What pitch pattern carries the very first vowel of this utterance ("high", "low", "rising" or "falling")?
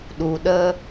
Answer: low